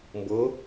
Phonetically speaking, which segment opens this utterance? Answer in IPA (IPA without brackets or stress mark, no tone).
m